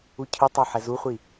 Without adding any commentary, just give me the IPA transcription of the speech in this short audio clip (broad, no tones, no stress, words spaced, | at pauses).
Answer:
ucʰɯtˤo ħɛzuχʷi